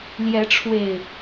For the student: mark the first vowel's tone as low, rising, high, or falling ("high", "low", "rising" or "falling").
rising